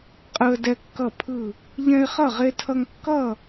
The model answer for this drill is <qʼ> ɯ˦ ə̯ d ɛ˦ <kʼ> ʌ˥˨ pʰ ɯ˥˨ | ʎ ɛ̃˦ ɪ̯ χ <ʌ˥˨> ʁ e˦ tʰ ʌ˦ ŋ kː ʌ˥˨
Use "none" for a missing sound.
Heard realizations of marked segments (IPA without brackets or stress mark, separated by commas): qʼ, kː, ʌ˥˨